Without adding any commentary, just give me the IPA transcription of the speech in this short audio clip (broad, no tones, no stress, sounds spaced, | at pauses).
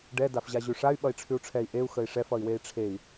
ɖ ɛ d a f ʑ a ʑ ʉ ʂ a y̯ ɓ ʌ i̯ ʈ͡ʂʰ ʉ u̯ ʈ͡ʂʰ ɛ i̯ ʔ e u̯ x ə i̯ ʂ ɛ f ʌ i̯ w e i̯ ʈ͡ʂʰ e i̯